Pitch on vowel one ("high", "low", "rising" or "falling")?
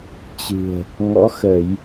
low